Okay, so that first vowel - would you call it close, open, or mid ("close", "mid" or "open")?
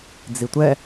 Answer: close